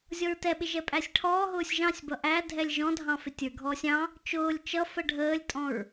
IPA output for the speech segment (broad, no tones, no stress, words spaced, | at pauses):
zʲɔɹtɛɓɪ ʒɛpʼæsʲʈʰɔːɦʊːsʲ ʒɑ̃sʲbʌ ʔæ dʱɛlʲʒɔ̃dʱɑ̃ fɪtʲə˞ɡʱɔːsʲ ɑ̃ | t͡ʃʊːlʲ t͡ʃʌ fəɖʱəːlʲtʼɔ̃ɹ